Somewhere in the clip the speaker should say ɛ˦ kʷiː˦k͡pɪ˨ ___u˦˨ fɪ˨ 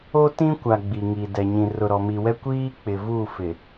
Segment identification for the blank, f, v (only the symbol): v